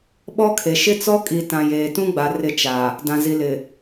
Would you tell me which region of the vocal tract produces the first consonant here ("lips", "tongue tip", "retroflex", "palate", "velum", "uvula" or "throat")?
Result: lips